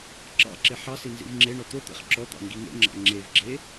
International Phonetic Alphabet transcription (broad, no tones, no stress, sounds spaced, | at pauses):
ǁ ɑ̰ ǁ e ħ ɑ s i n z ḭ v ŋ͡ǁ e ɳ ɔ t̪ o t̪ ḛ χ ǁ ɔ t̪ ɑ̰ ŋ ɡ i ŋ ḛ ŋ͡ǁ ɑ̰ ŋ͡ǁ e v ɡ͡ǁ e